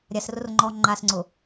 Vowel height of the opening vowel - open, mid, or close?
open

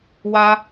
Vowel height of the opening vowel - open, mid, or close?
open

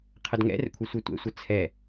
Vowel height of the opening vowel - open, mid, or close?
mid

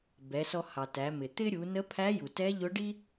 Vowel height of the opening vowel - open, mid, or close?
mid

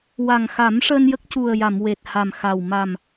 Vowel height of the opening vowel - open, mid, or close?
open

